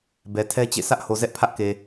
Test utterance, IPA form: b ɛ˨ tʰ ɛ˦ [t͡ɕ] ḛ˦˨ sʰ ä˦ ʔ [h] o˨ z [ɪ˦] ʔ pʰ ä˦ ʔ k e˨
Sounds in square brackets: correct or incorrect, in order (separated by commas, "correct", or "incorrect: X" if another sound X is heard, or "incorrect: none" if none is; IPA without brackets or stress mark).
correct, correct, incorrect: ɛ˦